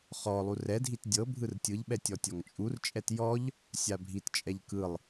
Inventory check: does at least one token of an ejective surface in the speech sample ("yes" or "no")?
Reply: yes